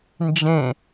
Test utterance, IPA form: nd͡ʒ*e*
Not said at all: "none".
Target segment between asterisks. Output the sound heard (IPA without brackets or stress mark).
ẽ